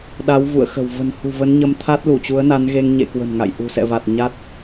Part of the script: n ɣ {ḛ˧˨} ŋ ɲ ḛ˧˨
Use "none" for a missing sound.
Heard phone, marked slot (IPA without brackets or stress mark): e˧